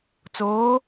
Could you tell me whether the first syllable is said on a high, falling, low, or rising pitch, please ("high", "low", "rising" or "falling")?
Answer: rising